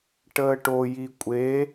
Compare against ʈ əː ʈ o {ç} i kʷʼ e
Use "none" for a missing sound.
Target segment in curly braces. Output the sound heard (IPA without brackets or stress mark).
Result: j